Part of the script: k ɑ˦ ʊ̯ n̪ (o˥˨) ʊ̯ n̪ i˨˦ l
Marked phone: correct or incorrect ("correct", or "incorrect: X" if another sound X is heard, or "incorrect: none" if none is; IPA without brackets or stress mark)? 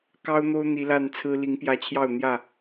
incorrect: o˦